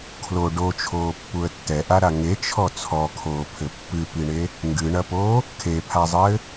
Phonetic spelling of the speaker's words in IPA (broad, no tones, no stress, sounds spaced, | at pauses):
kʰ l o ɖ o t͡ʃʰ oː pː u ə̯ tː ɛ ʔ a ɾ a ŋ e t͡ʃʰ ɔ t͡sʰ ɔ kʰ oː pʰ ɘ pː ɨ p i ɳ e | ŋ ɡ ɨ ɳ ɐ p oː | kʰ e pʰ a zˤ ɘː